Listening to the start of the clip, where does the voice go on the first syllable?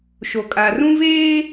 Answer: low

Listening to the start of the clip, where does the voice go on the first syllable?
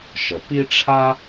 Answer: low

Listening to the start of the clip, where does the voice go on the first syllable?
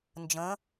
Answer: rising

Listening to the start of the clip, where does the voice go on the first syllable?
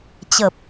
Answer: low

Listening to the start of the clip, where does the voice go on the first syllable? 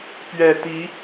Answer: low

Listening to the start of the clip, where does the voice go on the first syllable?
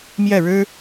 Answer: falling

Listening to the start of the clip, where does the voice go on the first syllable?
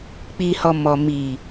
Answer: low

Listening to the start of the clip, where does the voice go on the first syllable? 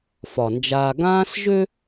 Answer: low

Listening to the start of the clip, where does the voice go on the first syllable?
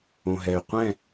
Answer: low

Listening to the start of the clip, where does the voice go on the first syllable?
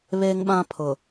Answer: high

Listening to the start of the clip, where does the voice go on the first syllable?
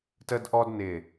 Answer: high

